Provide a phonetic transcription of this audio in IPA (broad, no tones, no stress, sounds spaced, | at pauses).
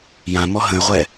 j ã m ɔ ɦ ə̃ y̯ ʁʷ ɛ